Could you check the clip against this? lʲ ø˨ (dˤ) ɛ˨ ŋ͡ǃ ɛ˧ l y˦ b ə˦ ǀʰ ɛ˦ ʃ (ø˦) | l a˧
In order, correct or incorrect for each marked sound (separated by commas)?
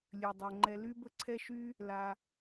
correct, incorrect